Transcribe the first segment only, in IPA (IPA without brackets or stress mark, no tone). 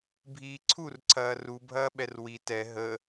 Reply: bʱ